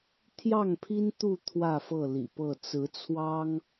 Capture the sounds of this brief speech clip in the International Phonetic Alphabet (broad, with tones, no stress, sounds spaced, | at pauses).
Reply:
t̪ʰ j ɑ˥˨ ŋ pʰ i˦ n t̪ u˥˨ t̪ʰ w ä˥˨ f ɤ˥˨ l ḭ˨˩ p ɤ˥˨ t͡s ɹ̩˨˦ t͡sʰ w ɑ˦ ŋ